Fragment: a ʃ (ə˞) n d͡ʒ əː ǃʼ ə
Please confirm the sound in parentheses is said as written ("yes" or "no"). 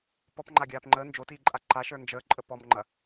yes